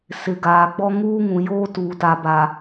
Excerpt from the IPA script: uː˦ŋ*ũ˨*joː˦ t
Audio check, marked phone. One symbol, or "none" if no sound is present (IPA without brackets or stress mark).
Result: ũ˨